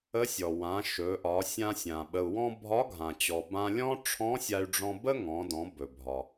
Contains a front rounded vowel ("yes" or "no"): yes